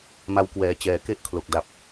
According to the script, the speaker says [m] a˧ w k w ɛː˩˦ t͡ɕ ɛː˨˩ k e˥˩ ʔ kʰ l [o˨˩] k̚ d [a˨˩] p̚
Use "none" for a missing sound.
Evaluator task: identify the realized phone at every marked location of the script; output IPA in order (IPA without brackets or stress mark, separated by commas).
m, o˨˩, a˨˩